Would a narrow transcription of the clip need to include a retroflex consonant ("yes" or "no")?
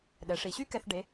yes